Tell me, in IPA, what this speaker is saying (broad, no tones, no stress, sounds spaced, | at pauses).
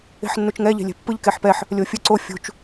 e̤ ħ nː u t͡ʃ ŋ ɛ ʎ e̤ lʲ ɛ̤ pː ɯ ʎ k e ħ p ɛ ħ | lʲ o fʲ ɯ ǀ o fʲ ṳ t͡ʃ